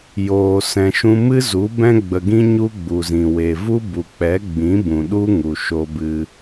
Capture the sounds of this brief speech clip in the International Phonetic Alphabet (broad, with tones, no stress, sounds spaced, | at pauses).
j oː˨ s ɛ̃˨ ʃ ũ˧ m ɨ˦ z u˨˦ b ɛ̃˧ ɡ͡b ə˨ ɡ ĩ˧ ɲ u˦ ɡ͡b u˨ z ĩ˨ w e˨ v u˦ b u˨ k͡p ɛ˨˦ ɡ͡b ĩ˨˦ b ũ˨ ɗ u˦ ŋ u˨ ʃ o˧ b ɨ˧